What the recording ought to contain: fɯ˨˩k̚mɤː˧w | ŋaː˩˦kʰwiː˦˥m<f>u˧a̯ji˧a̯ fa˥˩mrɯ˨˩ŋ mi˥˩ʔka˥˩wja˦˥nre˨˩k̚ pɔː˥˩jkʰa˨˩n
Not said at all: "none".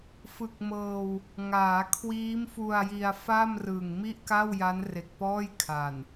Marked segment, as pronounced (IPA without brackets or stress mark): f